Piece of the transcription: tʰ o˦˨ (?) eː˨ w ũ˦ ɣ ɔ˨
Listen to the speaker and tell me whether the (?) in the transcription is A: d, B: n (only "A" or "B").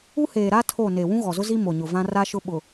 B